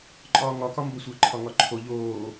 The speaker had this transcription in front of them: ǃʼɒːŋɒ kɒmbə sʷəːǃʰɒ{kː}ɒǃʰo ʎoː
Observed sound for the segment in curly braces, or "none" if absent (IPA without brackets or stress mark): ŋ